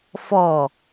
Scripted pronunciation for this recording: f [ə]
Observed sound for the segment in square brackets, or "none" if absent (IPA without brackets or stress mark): ɔ